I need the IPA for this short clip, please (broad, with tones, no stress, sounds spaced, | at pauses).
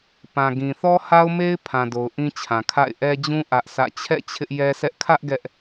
p ã˨ ɡ ĩ˨ θ ɔ˦ h a˦ ʊ̯ m e˦ ɪ̯ pʰ ã˨ d o˨ ʊ̯ ʔ ĩ˦ t͡ɕʰ ã˨ kʰ a̰˦˨ ɪ̯ ʔ ɛ˦ d͡ʑ ũ˦ ʔ ä˦ ʔ s ä̰˦˨ t͡ɕʰ ɛ̰˦˨ t͡ɕʰ ɪ˦ ʔ j ɛ˦ s ɛ˦ ʔ kʰ ä˦ ʔ ɡ ɛ˦ ʔ